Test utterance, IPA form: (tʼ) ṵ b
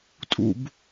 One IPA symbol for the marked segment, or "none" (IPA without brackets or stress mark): tʼ